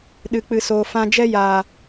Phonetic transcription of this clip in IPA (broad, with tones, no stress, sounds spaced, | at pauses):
ɗ ɨ˨ k͡p ɨ˨ s oː˨ f ã˧ d͡ʒ ɛ˦ j aː˨